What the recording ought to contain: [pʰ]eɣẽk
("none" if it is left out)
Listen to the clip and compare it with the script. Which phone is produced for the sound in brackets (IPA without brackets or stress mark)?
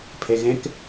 pʰ